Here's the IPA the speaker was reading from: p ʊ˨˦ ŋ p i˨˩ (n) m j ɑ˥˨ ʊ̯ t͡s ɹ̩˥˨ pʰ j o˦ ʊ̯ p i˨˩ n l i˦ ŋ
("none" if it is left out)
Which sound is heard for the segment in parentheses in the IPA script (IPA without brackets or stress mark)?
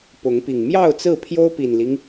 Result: ŋ